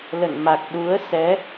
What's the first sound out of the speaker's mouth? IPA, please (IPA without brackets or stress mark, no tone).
l